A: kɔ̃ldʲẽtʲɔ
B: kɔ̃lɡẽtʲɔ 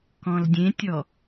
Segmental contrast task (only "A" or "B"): A